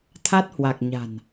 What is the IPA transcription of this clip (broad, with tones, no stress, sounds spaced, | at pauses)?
t̪ʰ a˦˥ t̚ h w a˨˩ k̚ ɲ a̤˨˩ n